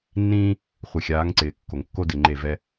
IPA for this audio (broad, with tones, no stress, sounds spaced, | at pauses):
nː ĩː˦ | χʷ ɪ˨ xʲ aː˨˦ ŋ ǀ ɪː˨ kː o˨ ŋ kː o˦ d ɪ˨ ŋ͡ǃ e˦˨ v ɛ˦